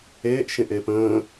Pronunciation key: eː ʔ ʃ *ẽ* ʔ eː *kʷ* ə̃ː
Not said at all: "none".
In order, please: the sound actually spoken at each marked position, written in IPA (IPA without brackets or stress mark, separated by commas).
ẽ, p